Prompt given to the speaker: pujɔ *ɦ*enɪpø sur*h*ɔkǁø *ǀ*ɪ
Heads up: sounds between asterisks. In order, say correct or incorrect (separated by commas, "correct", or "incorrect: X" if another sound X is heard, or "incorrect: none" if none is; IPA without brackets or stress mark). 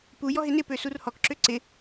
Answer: correct, correct, correct